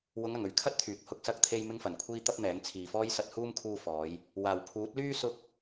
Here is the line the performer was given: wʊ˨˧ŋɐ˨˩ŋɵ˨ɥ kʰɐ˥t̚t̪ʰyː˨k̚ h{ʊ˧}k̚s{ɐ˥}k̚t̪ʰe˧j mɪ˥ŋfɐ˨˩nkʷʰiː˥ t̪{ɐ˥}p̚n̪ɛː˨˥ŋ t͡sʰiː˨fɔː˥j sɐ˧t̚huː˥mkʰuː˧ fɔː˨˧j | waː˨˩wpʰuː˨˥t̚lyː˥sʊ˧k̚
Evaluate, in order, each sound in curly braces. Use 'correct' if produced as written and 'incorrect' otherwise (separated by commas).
correct, incorrect, correct